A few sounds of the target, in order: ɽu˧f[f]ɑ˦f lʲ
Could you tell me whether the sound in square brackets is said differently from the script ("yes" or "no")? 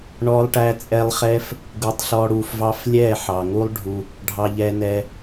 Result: yes